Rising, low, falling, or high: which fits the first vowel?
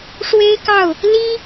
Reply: high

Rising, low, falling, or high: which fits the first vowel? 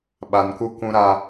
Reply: low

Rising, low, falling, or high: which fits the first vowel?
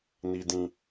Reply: low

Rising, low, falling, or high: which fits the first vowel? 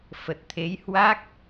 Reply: low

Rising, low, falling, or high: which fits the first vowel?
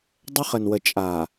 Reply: high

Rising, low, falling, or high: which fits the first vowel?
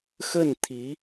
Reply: falling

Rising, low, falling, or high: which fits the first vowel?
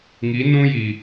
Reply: rising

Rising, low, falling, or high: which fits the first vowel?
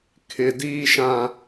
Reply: low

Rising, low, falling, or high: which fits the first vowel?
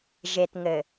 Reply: low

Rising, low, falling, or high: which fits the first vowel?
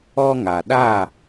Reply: high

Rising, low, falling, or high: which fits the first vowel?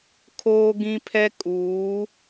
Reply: high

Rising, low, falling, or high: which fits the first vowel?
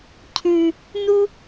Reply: low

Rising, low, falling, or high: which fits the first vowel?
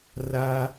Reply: high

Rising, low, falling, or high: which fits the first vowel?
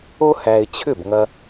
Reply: high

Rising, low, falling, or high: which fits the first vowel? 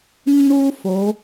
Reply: high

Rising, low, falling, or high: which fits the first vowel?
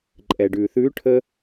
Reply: low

